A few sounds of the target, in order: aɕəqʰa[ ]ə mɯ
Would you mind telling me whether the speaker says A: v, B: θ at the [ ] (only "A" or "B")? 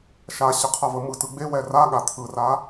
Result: A